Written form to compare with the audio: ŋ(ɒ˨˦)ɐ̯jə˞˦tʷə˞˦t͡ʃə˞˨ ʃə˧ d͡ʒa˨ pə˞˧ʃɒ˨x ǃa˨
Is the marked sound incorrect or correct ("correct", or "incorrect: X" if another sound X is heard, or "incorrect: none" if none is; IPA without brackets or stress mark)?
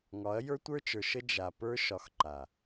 correct